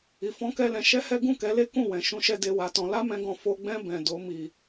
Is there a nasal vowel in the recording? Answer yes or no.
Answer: yes